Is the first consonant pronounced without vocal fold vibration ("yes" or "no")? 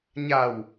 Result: no